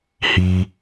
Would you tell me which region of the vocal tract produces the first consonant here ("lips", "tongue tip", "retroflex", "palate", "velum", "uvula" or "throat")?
throat